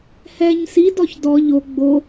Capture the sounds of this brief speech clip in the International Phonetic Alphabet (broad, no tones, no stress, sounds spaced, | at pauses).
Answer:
h ɛ ɲ s i d ɔ ç d ɔ ʎ o ɡ͡b o